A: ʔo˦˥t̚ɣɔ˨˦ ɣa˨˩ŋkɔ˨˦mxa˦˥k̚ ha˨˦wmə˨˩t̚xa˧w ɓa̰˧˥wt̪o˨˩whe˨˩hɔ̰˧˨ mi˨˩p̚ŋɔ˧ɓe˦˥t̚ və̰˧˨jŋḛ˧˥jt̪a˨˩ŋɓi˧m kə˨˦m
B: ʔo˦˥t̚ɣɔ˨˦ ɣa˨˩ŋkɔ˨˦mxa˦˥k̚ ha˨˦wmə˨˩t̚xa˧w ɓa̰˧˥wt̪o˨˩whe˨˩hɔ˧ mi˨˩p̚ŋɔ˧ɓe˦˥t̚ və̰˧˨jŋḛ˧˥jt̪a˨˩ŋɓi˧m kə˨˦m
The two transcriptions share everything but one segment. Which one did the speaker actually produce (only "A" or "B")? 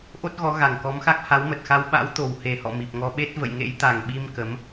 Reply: A